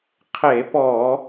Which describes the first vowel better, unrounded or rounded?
unrounded